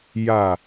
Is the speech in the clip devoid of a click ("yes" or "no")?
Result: yes